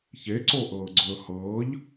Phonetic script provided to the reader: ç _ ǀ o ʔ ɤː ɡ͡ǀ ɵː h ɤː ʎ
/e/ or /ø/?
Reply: e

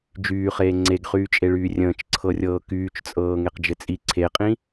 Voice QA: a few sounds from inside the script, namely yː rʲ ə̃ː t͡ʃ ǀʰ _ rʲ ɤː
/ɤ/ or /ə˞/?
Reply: ɤ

